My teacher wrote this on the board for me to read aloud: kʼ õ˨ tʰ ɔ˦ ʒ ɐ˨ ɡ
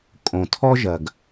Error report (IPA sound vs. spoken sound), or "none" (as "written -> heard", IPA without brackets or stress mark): none